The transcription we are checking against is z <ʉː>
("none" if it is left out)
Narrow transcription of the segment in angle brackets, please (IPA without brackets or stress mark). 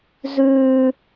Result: ʉː